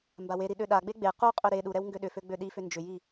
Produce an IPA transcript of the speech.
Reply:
mbaweɾi ɗøɗaɡ͡be ɡ͡be quqʼʏ ɾe ɗuɾɛw ŋɡøɗʏfø ɡ͡bøɗifʏ nd͡ʒʏji

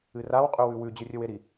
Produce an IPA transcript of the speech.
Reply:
ɨraw qʼʉwʉwʉ d͡ʑɨrʲɵweɾi

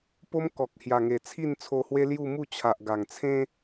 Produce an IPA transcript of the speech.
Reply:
po˦m kɔ˨k̚hja˨˩ŋe˨˩ t͡sʰi˥˧nt͡sʰo˧hwe˦ lju˥˧mu˥˧ t͡ɕʰa˨ʔɡa˨˩ŋt͡sʰẽ˦

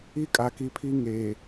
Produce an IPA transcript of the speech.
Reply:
i˦kʼa˨ki˨pʰi˦ ŋeː˨

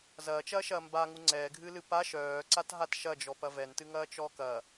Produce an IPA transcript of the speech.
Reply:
zɐːt͡ʃɐːʃɐː mba ŋuŋ͡ǀɛːɡʱɨːlɨ pa ʃœːǀat ɦatʃɐd͡ʒɔ pɐvɛntɨ ŋɐːt͡ʃɔːkɐ

